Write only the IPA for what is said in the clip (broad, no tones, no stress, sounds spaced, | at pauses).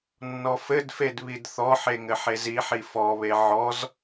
nː ɔ f ɘ d f e d β i d θ ɔ ħ e ŋ ɘ ħ e z i ħ i f ɔ β e ʕ ɔ z